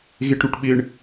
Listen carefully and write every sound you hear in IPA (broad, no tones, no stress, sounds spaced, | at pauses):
ɣ e ʈ ɾ u ʈ ɓ ɪ ɳ